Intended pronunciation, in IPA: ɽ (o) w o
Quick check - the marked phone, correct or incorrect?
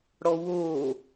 incorrect